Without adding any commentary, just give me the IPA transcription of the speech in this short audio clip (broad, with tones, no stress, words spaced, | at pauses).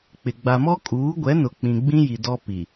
k͡pɪ˨ ɡ͡ba˨mɔ˦kʼuː˨˦ ɡʷɛ˨˦nʊ˨ k͡pĩ˨ ɡ͡bĩ˦ji˨ dɔ˦ pi˨